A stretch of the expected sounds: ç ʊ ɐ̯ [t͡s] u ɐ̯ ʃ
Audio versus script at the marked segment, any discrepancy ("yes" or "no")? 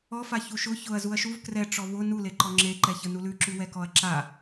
yes